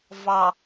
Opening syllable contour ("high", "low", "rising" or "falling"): low